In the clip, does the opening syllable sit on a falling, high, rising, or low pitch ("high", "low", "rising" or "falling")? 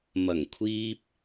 low